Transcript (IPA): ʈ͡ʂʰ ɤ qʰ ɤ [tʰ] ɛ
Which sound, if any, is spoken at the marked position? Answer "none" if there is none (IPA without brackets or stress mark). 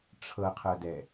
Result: d